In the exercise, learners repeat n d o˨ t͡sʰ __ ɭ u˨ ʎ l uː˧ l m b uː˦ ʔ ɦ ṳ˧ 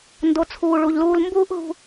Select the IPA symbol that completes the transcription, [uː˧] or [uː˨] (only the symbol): uː˨